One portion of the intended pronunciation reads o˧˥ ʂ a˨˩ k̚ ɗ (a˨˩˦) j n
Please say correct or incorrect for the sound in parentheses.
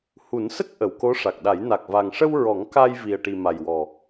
correct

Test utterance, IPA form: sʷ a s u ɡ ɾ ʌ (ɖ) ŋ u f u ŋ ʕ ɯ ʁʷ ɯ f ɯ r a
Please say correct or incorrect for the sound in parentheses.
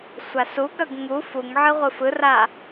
incorrect: ɡ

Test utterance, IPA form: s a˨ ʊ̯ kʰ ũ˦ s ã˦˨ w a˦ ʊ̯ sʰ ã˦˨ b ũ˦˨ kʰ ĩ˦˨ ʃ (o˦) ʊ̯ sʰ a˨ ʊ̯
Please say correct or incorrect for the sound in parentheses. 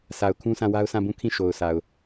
incorrect: o˨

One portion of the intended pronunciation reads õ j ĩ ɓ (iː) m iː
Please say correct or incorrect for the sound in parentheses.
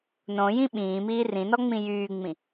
incorrect: ĩː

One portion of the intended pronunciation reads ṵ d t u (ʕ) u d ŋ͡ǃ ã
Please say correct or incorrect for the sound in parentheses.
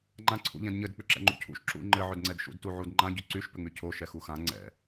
correct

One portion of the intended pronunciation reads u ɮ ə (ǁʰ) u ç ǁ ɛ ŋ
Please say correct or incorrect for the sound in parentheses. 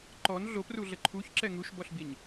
incorrect: ǃʰ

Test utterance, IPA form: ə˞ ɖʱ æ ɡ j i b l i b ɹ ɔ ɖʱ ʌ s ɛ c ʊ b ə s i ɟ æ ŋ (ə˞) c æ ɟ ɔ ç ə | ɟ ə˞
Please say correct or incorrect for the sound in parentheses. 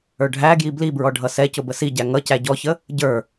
incorrect: ʌ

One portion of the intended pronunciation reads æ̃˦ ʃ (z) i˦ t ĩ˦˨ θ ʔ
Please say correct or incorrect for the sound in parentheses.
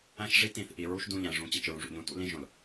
incorrect: ʐ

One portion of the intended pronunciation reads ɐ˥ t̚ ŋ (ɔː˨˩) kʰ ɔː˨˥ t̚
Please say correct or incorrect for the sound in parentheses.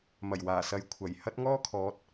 incorrect: ɔː˥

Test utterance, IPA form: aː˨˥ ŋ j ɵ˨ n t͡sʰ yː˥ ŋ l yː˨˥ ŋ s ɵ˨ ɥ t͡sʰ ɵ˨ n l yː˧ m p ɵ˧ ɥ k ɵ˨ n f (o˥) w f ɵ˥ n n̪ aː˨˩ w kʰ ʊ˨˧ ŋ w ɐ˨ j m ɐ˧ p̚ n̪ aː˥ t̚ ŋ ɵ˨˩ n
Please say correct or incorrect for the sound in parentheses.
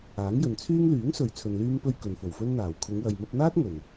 incorrect: o˨˩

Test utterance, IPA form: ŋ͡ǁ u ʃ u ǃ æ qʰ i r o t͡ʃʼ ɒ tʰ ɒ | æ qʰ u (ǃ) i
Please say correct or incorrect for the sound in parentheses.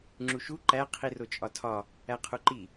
correct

